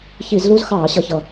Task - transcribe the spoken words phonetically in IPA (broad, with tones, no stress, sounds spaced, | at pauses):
ç i˧˩˧ z l u˦˥ z x ɑː˧˩˧ ɕ ʌ˨˩ ç ʌ˨˩